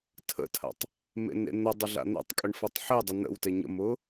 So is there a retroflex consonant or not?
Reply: yes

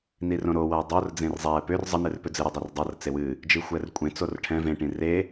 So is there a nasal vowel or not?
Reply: yes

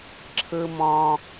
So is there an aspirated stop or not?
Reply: yes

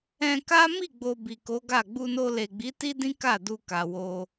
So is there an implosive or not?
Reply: no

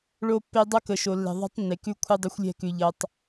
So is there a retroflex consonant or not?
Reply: yes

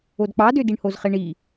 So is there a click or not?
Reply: no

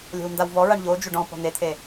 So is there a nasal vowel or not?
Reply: yes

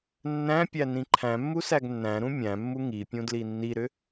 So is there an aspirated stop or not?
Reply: yes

